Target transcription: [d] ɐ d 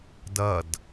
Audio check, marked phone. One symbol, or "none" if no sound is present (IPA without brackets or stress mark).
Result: d